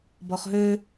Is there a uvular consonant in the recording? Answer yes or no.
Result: yes